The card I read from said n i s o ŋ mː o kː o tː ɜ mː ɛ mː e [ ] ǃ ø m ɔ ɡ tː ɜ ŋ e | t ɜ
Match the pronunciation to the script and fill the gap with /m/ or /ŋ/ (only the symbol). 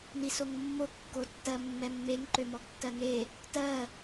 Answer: ŋ